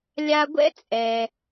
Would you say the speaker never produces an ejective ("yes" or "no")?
no